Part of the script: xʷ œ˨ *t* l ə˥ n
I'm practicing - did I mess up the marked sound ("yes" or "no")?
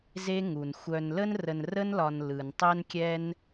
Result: yes